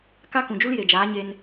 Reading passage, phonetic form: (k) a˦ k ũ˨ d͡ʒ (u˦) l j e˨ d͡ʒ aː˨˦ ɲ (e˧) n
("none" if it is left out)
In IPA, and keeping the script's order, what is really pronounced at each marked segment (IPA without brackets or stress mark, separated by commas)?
k, u˦, e˧